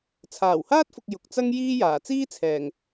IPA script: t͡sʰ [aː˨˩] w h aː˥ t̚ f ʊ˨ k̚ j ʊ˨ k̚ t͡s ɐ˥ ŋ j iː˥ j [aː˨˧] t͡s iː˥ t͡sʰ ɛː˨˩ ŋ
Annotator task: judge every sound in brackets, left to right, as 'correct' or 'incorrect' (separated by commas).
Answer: correct, incorrect